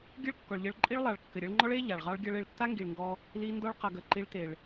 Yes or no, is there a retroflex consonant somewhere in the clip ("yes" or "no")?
yes